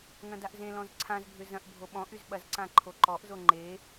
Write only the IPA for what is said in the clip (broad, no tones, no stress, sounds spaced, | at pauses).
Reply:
ŋ ɐ̃ d a ʔ z ẽ l ɔ̃ z ǀʰ ã z bʱ ʏ z ɐ̃ ʔ bʱ o ɓ ɔ̃ ʔ y z ɓ ɐ z ǀ ã ǃʰ o ǃ ɔ ʔ z o ŋ͡ǃ e